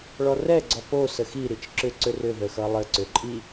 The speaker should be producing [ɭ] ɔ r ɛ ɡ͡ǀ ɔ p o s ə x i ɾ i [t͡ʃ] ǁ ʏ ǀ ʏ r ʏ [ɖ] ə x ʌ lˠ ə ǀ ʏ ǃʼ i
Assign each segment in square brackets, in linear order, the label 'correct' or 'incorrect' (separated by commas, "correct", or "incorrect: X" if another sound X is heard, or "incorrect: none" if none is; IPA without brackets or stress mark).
correct, correct, incorrect: ð